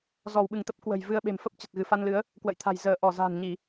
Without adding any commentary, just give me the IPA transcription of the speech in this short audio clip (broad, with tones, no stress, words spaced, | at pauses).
zɔ˧˩w ɓɨ˧˩ŋt̪ə˦˥p̚ kwə̤˨˩j vɨ˧ə̯ɓe̤˨˩m fə˦˥p̚ t͡ɕə˨˩t̚ɣɨ˧˩fa˧nlɨ˨˦ə̯ | kwə̰˧˨jt̪ʰa̤˨˩j zəː˧˩ ʔɔ˧˩za̤ː˨˩nɲi˧˩˨